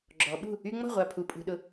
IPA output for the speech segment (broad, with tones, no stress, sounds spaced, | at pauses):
ɡ͡ǁ ɔ˩˧ ɓ ṳ˥˩ | y˧ ŋ͡m ɔ̤˥˩ ʁʷ a˨˩ pʰ u˩˧ pʼ ṳ˩˧ ɗ ʊ˨˥